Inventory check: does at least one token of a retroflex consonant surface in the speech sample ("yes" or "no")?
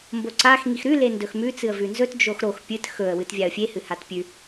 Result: no